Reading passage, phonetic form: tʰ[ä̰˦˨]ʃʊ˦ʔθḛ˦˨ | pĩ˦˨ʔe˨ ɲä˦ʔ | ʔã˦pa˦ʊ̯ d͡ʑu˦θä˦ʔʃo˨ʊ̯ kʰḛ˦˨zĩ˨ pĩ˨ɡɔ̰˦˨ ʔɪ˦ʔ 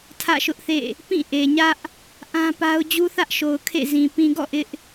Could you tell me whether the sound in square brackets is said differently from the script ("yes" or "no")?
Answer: no